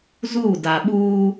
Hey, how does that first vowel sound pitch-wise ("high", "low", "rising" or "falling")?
falling